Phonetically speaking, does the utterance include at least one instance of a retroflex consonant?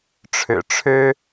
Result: yes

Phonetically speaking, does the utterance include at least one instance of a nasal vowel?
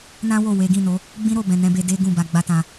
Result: yes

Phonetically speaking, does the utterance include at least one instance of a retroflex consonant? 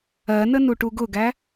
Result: yes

